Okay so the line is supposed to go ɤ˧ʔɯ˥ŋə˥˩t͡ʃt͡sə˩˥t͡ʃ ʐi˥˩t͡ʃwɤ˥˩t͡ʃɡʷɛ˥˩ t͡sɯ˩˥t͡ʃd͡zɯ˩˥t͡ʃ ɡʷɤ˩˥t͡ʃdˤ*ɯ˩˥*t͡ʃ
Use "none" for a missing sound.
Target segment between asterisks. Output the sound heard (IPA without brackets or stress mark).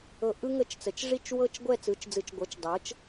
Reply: ɤ˩˥